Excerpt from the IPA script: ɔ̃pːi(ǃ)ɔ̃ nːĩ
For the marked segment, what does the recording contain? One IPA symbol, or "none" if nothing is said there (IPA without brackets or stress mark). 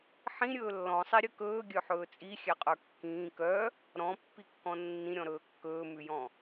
kː